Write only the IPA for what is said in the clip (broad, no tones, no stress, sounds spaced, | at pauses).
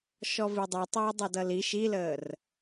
ʃ ɔ v i dˤ u tˤ j ʌ dˤ ʌ d ʌ l i ʃ i l əː r